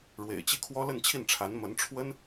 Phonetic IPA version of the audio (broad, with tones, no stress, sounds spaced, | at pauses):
ɻ w ḛ˨˩ ɪ̯ t͡ɕ i˥˩ kʰ w ɔ˥ l ə˥˧ n t͡ɕʰ i˥˩ n ʈ͡ʂʰ a˧˥ n m ə˧˥ n ʈ͡ʂʰ w ə˥ n